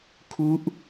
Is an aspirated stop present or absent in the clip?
present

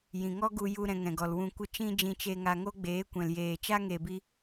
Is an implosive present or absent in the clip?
absent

